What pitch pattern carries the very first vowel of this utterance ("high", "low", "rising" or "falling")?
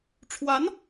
rising